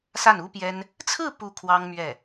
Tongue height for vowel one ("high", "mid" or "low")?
low